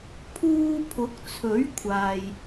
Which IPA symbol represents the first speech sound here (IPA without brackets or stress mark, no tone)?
pʰ